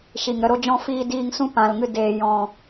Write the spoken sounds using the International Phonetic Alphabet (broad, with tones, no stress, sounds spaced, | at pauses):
ʃ i˨ ŋ ɾ ə˧ ɾ o˦ d͡ʒ ɔ̃˦ f iː˧ d iː˧ ŋ s ũ˦ p ã˨ l ŋ ɨ˧ d eː˨ j ɔ̃˨